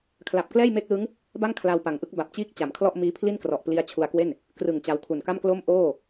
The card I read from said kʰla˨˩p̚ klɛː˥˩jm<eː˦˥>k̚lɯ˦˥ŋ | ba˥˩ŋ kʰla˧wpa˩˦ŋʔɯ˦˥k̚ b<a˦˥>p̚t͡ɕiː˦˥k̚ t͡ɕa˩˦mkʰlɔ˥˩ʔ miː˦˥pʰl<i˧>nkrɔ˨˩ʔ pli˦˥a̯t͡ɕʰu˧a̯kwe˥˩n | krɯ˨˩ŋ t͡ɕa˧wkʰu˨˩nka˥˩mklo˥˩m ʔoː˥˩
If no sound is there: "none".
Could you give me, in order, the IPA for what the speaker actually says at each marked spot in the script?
eː˦˥, a˨˩, i˥˩

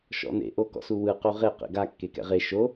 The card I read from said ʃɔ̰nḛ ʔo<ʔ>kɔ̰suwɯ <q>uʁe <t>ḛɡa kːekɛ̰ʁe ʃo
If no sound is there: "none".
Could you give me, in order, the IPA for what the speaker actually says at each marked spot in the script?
none, q, q

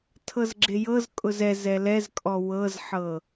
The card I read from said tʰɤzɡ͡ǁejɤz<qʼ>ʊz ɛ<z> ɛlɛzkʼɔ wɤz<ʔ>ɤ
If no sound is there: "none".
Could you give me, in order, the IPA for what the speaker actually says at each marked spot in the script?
kʼ, z, ħ

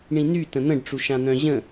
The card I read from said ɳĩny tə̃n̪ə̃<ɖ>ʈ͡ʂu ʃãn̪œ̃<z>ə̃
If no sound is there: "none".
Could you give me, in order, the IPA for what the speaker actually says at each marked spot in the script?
ɖ, ʑ

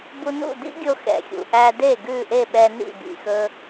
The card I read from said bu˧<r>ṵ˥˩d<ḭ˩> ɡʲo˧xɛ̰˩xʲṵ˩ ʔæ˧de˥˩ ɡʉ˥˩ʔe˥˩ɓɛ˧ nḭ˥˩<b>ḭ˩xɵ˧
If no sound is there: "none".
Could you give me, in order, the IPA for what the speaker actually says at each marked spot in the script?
n, ḭ˥, b

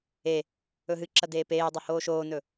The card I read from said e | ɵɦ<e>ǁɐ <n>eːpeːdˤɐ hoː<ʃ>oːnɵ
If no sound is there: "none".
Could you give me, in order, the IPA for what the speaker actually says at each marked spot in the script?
ɨ, d, ʃ

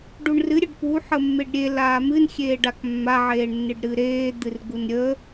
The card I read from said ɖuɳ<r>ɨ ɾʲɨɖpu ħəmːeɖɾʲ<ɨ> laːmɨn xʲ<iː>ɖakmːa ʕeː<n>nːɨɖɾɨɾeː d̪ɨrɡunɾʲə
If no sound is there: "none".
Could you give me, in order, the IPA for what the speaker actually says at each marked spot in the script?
r, e, eː, ɳ

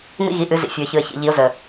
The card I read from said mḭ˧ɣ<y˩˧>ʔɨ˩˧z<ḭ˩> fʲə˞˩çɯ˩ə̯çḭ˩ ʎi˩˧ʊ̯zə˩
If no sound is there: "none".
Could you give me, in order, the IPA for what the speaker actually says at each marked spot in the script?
i˩˧, ḭ˩

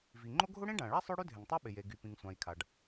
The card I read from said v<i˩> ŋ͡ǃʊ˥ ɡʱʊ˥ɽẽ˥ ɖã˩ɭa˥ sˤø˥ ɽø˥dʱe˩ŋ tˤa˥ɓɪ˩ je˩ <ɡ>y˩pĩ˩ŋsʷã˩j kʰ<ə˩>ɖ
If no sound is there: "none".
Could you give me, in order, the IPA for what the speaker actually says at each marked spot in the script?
i˩, ɡ, a˩

